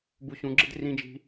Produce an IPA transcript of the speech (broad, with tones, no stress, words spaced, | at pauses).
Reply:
bu˧ɕũ˧ɡ͡ǁɪ˦d rĩ˧d͡ʒi̤˧